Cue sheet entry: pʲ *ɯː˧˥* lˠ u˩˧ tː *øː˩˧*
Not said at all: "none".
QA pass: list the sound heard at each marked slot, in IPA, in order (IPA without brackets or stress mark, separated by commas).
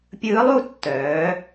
ɯː˧˥, œː˩˧